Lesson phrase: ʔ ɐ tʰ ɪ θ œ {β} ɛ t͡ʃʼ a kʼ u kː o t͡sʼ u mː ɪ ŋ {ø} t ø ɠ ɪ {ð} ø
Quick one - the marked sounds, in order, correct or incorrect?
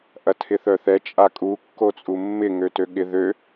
incorrect, correct, correct

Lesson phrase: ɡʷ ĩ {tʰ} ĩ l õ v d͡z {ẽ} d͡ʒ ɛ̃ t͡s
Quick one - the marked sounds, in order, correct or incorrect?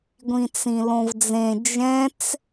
incorrect, correct

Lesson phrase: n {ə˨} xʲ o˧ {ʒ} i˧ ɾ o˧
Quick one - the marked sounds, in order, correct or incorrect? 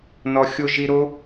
incorrect, correct

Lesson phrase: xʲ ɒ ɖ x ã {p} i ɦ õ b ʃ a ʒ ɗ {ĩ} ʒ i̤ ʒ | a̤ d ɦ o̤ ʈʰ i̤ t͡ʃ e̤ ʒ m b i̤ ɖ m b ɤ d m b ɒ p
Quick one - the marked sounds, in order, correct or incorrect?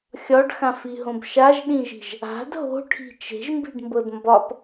incorrect, correct

